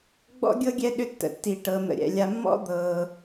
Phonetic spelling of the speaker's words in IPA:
ɡ͡b ɔ̰˥ ɡʲ ɤ˥ ɡʲ ɛ˦ ɗ ʏ˦ tː ə̰˩ tː i˩ ʈ ɤ˩ n̪ ə̰˩ ɾʲ ɛ̰˩ lʲ a˨ mː ɔ̰˥ d̪ ɤː˩

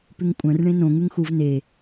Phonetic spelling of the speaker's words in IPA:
p ʉ ŋ kʷʼ œ̃ r ɳ ẽ n õ ŋ ʉ ŋ x u v n e

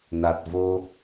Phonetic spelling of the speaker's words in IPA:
n a˨˩ t̚ v o˧

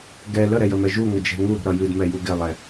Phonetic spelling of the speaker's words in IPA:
ɡ ɛ l ə ɾ ɛ j ə m ɛ ʒ u ŋ ə d͡ʒ ɛ̤ ŋ u ɾ ṳ ɾ ʌ j ɨ d m ɛ j u ɡ ɪ lˠ ɛ

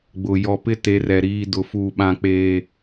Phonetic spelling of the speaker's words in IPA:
ɡ͡b ʊ˨ j ɔ˨ p ɪ˦ t e˨˦ r ɛ˨ ɾ iː˦ d ʊ˦ f uː˦ ɓ ã˦ k͡p eː˦

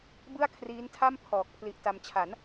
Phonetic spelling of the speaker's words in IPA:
b ɯ˥˩ a̯ kʰ r iː˦˥ n tʰ a˥˩ m pʰ ɔː˨˩ k̚ pʰ l i˦˥ ʔ t a˦˥ m t͡ɕʰ a˩˦ n

